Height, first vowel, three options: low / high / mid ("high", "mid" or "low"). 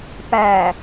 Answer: low